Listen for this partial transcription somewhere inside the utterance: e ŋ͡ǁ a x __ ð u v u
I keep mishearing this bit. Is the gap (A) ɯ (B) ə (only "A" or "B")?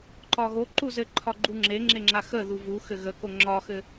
B